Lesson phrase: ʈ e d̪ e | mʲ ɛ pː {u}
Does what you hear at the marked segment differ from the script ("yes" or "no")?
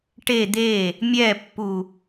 no